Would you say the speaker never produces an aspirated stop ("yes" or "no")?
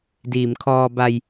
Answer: no